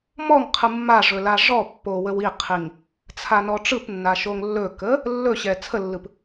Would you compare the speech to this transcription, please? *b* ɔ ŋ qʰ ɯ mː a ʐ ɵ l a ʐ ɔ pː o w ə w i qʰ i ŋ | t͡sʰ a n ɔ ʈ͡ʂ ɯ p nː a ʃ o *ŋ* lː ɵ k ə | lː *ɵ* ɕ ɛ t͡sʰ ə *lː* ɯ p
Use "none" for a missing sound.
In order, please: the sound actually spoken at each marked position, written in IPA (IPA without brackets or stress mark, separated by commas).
m, ŋ, ɵ, lː